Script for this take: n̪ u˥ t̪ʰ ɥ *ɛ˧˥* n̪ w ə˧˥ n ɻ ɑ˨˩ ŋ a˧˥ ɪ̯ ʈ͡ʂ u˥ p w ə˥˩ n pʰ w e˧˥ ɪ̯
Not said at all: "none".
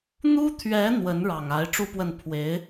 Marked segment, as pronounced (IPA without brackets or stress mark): ɛ˧˥